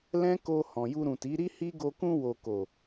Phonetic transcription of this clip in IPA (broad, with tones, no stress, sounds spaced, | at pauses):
l ɛ̃˦ k o˧ h ɔ̃˨ j u˧ ɾ ũ˨ t i˨˦ ɾ i˦ h i˦ ɡ o˧ k ũ˧ w o˨ k o˨